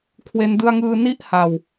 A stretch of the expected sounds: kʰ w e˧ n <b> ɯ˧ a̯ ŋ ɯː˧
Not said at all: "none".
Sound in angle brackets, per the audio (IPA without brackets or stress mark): d